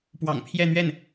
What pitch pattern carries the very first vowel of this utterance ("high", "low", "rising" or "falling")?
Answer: low